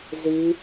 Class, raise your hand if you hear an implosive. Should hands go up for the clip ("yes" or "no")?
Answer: no